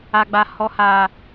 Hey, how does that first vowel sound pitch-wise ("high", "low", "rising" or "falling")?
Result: high